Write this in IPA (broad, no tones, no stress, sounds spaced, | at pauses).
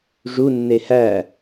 ʐ u nː e h æ